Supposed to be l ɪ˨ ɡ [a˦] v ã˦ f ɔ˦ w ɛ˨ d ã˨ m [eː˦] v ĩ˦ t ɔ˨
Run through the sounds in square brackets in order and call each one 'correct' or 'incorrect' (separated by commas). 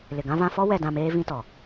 incorrect, correct